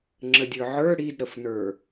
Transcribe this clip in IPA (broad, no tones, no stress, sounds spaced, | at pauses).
ŋ͡ǁ ə dʲ ə˞ ʕ ə˞ ɽ i d ɾ ə f n ə˞